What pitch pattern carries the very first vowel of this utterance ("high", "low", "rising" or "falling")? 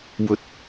low